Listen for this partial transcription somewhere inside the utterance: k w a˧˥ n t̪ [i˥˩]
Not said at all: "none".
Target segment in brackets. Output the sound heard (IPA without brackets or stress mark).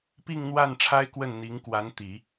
i˨˩˦